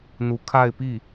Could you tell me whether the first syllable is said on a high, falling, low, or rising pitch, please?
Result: rising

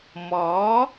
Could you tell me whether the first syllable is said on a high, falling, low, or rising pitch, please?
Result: rising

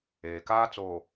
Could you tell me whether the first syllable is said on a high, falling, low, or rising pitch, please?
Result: low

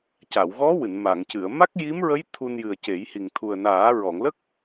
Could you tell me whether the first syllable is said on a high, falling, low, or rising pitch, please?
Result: low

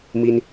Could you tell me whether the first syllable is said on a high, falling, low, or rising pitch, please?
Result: high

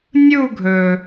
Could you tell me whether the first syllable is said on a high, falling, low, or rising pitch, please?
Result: falling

